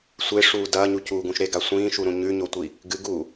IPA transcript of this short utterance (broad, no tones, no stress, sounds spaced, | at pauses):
sʷ e ʂ uː d ɐː ɲ u c uː ɡ ũ ʃ ɾ e ɡ a sʷ ĩː ʃ u ɾ ũ ɲ ʉ ɲ o tʷ i | ɡ ɨ ɡ uː